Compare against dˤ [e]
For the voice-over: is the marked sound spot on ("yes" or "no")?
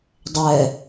no